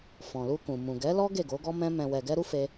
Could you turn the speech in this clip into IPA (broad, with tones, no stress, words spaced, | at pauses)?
fɔ̃˨lu˧kũ˨ mũ˨ɡɛ˨˦lɔ˦ ɡe˦˨ɡo˨˦ɡɔ˦ mɛ̃˦mɛ̃˧wɛ˧ ɡɛ˦ɾu˦ fe˦